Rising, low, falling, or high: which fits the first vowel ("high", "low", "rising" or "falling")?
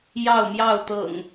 falling